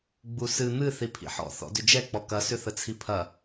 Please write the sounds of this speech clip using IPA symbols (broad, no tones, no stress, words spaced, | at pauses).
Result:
ɡ͡busɨ n̪ɨ θipʰḭħɔ̰ θɔ̰dʏd͡ʒɛ k͡pɔkɐ sʏθət͡sʰipʰɐ